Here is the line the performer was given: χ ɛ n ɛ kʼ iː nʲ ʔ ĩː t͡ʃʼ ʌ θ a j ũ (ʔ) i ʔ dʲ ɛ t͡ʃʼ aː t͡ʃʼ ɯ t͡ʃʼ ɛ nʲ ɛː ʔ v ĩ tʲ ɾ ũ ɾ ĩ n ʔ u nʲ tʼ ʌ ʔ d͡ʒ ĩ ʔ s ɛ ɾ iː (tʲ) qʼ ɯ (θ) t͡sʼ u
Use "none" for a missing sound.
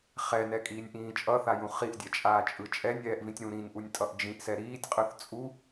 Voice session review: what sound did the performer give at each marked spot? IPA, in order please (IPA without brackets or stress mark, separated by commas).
χ, tʲ, θ